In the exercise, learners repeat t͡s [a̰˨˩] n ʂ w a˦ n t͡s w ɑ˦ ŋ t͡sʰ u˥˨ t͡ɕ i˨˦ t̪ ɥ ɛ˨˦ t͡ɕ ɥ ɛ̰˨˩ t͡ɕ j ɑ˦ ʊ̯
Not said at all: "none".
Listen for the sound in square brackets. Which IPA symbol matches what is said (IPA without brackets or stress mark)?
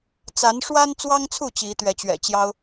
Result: a˨˦